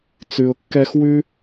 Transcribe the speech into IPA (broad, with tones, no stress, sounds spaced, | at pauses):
t͡s ʉ˩ ʊ̯ kː ɛ˧ x w ʉ˥